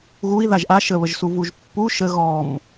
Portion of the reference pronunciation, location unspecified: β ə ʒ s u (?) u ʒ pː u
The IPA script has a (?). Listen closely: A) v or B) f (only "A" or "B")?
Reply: A